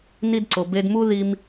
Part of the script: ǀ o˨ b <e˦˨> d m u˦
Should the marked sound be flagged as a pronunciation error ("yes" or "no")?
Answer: yes